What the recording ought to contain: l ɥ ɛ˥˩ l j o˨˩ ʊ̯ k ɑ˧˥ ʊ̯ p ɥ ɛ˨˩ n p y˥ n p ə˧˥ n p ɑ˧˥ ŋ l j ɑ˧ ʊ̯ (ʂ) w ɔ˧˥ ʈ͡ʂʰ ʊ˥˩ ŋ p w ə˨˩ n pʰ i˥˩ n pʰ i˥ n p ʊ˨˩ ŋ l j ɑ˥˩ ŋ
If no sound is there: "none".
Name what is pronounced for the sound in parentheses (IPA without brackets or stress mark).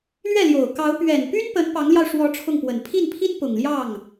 ʂ